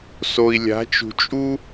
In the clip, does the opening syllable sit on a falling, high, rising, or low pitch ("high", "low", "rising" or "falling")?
low